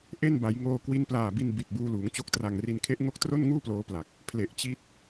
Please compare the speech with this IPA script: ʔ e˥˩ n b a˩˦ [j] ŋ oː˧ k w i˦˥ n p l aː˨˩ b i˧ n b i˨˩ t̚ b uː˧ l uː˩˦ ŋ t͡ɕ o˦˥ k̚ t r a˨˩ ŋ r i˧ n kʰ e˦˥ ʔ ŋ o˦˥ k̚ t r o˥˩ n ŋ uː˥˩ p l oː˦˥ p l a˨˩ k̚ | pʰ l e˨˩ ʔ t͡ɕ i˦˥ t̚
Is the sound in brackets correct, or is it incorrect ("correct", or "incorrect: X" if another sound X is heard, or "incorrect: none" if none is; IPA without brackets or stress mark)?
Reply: correct